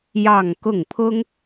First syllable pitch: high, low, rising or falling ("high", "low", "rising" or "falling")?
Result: falling